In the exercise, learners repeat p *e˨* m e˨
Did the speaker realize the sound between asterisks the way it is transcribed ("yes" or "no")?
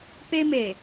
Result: no